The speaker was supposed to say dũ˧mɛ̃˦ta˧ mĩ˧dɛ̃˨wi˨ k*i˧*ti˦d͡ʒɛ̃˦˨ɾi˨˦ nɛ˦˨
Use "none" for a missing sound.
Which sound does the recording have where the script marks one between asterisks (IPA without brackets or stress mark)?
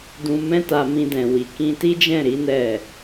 ĩ˧